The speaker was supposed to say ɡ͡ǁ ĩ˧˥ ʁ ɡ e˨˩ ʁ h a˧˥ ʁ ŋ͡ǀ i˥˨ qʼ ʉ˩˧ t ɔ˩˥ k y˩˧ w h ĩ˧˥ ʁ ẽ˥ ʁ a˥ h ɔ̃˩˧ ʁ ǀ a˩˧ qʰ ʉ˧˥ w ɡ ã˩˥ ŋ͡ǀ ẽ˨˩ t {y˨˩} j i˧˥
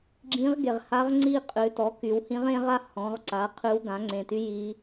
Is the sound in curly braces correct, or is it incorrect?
incorrect